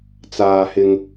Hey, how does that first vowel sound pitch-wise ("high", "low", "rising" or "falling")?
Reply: low